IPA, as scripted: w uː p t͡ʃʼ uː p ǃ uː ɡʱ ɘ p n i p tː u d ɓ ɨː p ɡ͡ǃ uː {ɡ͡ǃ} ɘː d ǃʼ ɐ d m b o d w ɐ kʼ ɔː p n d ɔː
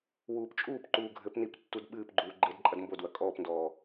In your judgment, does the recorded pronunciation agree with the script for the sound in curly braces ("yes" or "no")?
yes